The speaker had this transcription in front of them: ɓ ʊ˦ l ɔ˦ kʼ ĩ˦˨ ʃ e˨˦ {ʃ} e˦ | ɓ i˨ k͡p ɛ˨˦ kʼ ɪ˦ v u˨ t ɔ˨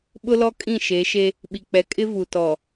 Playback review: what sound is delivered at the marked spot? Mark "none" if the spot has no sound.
ʃ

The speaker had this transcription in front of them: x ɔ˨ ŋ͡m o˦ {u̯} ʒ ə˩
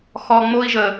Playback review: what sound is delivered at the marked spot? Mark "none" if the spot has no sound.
i̯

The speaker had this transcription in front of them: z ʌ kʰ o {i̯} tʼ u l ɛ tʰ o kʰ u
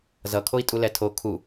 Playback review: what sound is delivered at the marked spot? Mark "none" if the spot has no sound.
i̯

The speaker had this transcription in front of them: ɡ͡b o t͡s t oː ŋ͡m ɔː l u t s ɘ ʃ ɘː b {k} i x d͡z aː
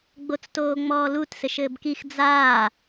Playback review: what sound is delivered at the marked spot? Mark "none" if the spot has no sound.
k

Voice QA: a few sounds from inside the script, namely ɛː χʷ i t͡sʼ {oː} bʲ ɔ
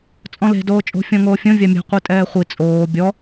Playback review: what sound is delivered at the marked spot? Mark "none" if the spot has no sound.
oː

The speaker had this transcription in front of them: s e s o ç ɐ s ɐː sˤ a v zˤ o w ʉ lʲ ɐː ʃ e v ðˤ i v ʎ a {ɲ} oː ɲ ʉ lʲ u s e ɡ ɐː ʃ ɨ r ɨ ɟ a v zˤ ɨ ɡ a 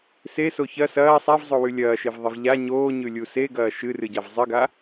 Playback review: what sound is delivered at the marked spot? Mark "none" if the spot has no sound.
ɲ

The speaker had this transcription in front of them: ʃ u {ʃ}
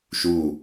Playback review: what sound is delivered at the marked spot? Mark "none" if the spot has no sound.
none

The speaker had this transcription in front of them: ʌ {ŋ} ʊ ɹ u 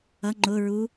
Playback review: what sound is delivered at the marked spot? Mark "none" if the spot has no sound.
ŋ͡ǃ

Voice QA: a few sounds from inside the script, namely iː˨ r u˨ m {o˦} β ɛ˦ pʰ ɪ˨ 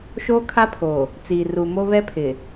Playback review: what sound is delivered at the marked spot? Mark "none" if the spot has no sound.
o˦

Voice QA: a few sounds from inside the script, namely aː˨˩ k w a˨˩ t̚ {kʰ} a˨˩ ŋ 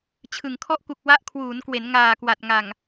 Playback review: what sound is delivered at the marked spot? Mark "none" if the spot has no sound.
ŋ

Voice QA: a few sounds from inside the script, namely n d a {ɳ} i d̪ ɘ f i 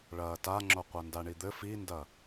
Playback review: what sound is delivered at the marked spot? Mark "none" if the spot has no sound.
ɳ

